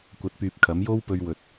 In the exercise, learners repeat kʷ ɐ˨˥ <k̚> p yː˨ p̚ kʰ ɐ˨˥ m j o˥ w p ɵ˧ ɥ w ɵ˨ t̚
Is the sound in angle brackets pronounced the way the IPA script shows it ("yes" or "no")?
no